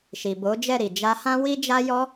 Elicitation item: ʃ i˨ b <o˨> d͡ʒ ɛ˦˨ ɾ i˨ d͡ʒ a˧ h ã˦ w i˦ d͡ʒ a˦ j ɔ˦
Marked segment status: incorrect: o˨˦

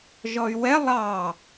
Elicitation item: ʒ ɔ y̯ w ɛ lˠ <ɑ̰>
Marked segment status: incorrect: ɑ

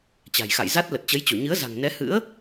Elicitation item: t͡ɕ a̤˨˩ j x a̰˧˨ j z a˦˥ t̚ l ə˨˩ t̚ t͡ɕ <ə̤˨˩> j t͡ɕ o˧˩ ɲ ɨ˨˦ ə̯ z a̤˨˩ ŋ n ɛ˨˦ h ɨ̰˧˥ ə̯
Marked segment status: incorrect: ə˨˦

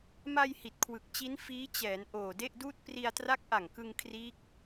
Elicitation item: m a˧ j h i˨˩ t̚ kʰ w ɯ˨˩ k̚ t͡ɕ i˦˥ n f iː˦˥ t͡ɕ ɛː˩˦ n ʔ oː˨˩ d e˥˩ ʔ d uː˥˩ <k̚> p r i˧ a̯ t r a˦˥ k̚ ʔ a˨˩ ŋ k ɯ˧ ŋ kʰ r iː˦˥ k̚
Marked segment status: incorrect: t̚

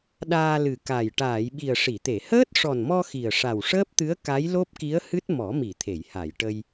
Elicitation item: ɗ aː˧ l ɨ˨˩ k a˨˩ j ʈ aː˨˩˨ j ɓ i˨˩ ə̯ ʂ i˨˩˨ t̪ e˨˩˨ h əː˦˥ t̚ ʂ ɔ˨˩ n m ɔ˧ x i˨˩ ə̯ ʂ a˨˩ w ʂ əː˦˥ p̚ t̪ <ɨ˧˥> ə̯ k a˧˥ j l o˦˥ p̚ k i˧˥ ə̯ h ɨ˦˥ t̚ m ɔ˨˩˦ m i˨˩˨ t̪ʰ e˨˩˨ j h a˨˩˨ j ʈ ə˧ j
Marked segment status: correct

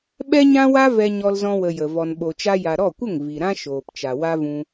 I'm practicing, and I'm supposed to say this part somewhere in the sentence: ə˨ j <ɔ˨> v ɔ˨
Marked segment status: incorrect: ə˨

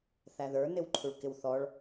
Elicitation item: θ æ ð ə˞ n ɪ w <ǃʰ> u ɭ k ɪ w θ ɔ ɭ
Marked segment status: correct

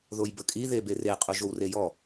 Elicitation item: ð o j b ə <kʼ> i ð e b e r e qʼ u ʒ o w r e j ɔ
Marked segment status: correct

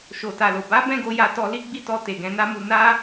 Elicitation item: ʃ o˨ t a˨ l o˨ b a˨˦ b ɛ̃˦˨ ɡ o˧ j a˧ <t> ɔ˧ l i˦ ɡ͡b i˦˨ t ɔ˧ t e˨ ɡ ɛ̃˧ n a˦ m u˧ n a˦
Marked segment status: correct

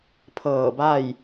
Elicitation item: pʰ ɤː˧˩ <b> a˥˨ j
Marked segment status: correct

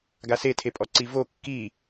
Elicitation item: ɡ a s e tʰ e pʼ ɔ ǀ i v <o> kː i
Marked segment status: correct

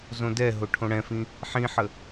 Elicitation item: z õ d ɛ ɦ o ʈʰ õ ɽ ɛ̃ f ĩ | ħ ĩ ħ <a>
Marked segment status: incorrect: ə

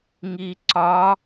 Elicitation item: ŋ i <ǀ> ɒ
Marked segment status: correct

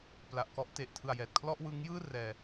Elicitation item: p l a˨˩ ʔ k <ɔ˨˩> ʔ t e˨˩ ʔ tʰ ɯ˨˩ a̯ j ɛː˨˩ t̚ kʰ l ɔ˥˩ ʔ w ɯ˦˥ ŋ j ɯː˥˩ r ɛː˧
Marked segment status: incorrect: ɔ˦˥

